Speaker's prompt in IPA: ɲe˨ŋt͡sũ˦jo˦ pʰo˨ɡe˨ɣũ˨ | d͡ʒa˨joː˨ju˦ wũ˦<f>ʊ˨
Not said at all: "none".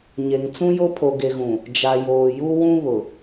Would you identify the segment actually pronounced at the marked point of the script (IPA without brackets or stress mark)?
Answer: β